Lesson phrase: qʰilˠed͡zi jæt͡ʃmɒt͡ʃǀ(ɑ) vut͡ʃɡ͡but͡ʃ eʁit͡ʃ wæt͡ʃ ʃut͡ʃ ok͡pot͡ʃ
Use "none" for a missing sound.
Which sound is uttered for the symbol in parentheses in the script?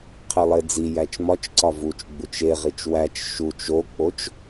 ɒ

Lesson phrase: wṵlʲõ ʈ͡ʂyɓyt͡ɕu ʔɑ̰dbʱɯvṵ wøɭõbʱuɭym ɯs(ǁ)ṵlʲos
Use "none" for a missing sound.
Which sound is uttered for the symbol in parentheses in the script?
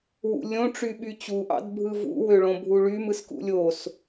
k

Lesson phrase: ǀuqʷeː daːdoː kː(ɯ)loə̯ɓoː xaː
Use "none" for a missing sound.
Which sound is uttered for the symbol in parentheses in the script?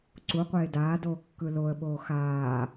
ɯ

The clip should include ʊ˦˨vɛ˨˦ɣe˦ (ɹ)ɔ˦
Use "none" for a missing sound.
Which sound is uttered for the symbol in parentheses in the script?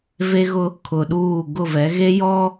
j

